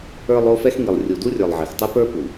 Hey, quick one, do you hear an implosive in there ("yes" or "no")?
no